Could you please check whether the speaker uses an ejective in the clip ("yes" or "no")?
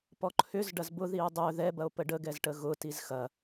no